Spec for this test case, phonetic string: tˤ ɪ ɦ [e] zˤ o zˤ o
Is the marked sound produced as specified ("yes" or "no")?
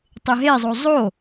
yes